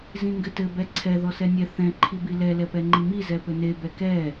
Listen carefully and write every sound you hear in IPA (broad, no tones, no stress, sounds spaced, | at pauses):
z ĩ ŋ ɡ ɘ t ɘ b ɛ ǀʰ ɛ ð ɔ s ɛ nʲ ɛ θ ɛ̃ ǃʰ i b i l ɛ l ɛ p ɛ ŋ͡ǃ i m i z ɛ p ɘ n e b ɛ k ɛ